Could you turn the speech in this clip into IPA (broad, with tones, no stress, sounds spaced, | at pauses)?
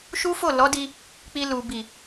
ʃ u˦ f o˦˨ l ɔ˨˦ d i˧ | k͡p i˧ l u˨ b i˨